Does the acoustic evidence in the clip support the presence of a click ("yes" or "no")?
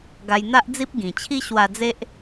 no